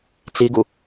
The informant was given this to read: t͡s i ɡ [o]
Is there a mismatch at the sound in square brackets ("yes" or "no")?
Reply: yes